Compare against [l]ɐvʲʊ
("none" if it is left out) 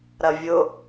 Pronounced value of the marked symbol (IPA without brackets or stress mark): ɾ